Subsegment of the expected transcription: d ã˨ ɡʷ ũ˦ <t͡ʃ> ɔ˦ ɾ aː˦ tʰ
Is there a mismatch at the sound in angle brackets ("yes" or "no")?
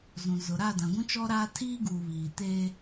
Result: no